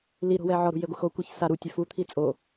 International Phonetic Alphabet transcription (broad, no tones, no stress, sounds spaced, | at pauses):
l i ɾ o̤ w ɛ ʕ ɔ ɾ ṳ j e ɡʷ ɪ x o kʷ ɛ ç s a ɾ u tʲ ɛ f u t̪ʰ i t͡sʼ o